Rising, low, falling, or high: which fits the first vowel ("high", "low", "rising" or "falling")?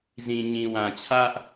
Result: low